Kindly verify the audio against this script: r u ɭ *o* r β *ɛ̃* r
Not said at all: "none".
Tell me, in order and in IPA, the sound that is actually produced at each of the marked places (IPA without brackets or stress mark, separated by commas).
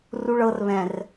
ɤ, ɛ̃